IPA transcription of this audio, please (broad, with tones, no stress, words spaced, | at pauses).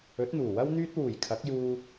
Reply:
ɵ˨˥t̚n̪uː˨˩wɐ˥w n̪yː˥t̚wuː˨˩jkʰɐ˨˥k̚juː˧